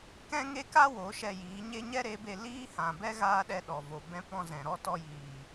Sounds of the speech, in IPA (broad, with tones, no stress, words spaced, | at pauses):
kɛ̃˦ŋe˦ka˦ wo˨˦ʃɛ˧jiː˨˦ɲe˦ ɲɛ˦ɾe˨˦be˧ liː˦ hã˨bɛ˦ ɣaː˦ɗɛ˧ ɗɔ˨vo˨ bɛ̃˦pɔ̃˦zɛ̃˨ ɾɔ˦tɔ˧jiː˨